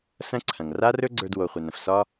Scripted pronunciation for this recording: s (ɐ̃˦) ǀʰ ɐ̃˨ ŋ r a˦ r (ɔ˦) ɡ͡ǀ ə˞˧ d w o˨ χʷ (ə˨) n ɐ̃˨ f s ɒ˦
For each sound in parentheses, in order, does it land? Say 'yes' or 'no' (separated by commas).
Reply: yes, no, yes